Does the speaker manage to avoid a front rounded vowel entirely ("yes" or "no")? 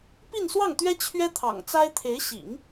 yes